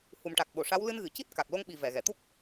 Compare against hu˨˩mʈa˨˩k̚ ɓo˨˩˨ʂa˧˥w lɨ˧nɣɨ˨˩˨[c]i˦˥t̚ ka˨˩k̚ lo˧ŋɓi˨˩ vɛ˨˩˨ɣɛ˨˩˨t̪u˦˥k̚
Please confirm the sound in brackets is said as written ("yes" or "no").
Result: yes